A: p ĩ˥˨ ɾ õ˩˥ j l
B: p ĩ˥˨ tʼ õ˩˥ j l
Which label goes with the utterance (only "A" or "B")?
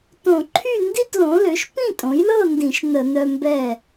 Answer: B